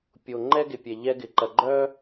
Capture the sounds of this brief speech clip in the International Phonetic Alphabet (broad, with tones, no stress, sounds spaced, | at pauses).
pʲ o˨ ŋ͡ǃ ɛ˦ ɡ ɪ˨ pʲ ɛ˨ ʎ ɛ˦ ɡ ɪ˨ ǃ ɐ˨ ɡ͡ǃ œ˦